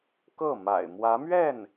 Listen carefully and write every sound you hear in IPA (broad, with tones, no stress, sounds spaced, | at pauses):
k ɤ˥˩ m a̰˨˩ ɪ̯ m w ä˧˥ m ɥ ɛ˥˩ n